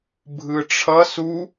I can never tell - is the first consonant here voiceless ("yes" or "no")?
no